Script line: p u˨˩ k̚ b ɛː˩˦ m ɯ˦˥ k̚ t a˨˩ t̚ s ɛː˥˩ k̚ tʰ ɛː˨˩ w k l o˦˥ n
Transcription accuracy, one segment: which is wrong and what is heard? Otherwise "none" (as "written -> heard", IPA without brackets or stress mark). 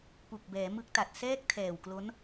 none